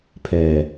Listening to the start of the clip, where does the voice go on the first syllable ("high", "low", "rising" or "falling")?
low